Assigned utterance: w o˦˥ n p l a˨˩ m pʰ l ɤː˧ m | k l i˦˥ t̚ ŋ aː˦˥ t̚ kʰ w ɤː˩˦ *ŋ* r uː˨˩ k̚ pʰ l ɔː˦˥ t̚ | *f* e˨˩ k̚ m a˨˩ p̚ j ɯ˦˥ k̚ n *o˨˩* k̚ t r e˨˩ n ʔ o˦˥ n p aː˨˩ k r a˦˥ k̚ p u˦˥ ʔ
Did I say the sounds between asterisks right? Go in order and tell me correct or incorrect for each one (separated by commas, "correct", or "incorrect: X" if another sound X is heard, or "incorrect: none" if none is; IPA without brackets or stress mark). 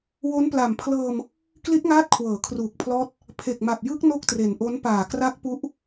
incorrect: kʰ, incorrect: pʰ, incorrect: o˥˩